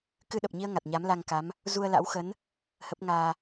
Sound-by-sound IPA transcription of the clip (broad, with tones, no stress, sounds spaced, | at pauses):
k ɨ˧ ɗ ə˨˩ p̚ ɲ i˧ ə̯ ŋ a˨˩ t̚ ɲ a˨˦ m l a˧ ŋ k a˨˦ m | z u˧ ə̯ l a̰˧˥ w x ə˨˦ n | h ə˦˥ p̚ ŋ aː˧